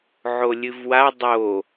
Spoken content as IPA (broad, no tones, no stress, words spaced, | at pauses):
ʕolʲɨvwa dˤo